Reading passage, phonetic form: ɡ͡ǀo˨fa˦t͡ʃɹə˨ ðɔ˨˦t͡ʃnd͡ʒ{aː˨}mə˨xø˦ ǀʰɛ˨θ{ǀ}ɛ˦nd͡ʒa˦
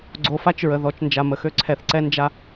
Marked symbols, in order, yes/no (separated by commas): no, yes